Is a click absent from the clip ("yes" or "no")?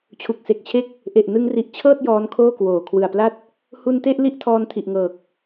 yes